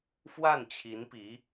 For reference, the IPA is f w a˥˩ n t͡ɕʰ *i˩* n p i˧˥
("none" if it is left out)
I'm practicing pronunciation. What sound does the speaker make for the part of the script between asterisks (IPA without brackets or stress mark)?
i˧˥